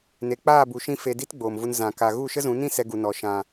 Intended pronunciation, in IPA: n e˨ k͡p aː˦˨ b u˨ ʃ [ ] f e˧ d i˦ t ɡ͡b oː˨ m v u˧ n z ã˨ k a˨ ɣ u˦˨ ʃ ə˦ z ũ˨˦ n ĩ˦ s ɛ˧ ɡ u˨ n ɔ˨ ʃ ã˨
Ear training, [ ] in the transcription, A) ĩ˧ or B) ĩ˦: A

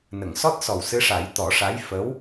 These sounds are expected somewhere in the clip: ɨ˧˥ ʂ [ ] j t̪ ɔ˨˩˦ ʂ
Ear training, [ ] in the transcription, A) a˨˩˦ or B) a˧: A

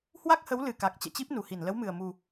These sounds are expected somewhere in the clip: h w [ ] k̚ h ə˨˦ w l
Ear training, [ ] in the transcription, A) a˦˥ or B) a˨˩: A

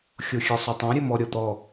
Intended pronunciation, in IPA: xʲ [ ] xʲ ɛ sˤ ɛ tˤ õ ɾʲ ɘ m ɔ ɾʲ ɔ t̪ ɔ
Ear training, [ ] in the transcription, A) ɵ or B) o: B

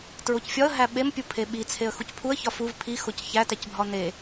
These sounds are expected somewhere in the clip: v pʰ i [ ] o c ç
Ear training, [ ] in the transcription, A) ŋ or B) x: B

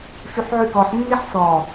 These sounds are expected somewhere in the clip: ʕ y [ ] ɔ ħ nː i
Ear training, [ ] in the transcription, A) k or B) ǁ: A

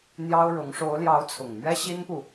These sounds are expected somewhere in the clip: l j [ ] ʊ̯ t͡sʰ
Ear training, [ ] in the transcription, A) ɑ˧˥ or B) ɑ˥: A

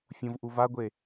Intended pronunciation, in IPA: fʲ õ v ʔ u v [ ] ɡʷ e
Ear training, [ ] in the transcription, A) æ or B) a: B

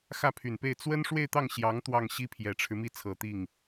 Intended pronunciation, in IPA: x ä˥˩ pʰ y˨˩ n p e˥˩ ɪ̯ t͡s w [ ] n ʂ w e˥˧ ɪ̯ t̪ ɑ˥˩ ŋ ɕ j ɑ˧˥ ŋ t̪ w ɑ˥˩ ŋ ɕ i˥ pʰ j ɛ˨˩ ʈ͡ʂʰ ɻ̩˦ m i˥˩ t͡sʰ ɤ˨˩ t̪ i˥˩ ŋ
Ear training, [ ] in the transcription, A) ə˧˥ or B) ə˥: B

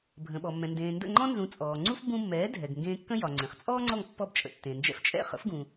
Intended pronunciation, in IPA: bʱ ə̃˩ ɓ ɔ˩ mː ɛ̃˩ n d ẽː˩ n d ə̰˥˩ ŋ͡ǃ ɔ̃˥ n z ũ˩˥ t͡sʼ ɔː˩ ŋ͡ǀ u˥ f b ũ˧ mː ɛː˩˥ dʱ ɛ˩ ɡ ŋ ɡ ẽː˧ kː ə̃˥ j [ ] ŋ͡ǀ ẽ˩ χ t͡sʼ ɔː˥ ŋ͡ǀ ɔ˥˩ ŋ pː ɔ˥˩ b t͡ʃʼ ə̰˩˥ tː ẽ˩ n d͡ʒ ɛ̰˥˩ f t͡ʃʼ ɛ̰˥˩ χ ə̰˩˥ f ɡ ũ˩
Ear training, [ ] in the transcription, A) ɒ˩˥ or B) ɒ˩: B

